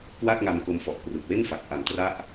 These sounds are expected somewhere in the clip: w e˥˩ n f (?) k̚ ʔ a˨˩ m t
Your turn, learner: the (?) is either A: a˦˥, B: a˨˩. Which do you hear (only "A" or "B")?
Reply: B